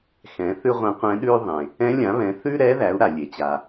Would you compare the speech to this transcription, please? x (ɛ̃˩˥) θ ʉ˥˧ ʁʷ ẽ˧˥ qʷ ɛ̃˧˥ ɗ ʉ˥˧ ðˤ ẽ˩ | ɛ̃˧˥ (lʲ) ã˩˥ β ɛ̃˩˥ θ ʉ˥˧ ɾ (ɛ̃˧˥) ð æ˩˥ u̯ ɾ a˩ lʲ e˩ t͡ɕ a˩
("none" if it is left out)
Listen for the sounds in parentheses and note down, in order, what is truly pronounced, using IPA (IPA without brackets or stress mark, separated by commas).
ɛ̃˩˥, lʲ, ɛ˧˥